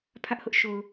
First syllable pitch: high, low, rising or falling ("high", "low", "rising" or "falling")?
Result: high